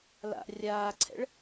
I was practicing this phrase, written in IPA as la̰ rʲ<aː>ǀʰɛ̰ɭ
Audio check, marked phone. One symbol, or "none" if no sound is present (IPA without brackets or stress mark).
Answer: aː